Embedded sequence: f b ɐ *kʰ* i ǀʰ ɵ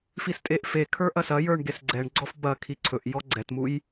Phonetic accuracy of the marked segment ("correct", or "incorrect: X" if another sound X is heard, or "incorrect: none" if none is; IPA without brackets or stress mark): correct